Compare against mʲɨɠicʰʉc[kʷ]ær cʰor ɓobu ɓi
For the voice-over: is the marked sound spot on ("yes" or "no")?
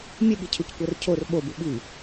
yes